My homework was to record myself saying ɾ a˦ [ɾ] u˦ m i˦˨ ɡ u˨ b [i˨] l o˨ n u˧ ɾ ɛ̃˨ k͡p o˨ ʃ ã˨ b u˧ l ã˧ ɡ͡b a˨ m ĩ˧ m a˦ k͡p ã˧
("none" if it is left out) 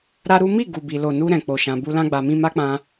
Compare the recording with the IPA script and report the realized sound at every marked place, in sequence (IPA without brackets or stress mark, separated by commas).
ɾ, i˨